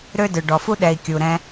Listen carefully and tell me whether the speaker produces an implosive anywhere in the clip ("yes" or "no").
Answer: yes